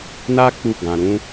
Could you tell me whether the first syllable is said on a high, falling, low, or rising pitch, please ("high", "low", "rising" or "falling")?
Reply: high